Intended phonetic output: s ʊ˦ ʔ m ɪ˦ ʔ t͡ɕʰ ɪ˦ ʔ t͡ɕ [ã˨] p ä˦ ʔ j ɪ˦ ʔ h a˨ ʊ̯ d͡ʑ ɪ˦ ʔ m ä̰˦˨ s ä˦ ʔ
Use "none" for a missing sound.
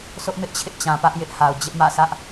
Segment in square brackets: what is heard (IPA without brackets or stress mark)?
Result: ã˨